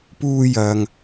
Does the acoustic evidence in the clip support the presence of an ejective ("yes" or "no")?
no